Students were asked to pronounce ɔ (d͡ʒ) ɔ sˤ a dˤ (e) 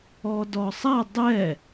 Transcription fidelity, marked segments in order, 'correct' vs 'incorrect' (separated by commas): incorrect, incorrect